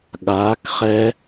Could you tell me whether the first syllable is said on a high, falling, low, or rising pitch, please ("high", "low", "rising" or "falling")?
rising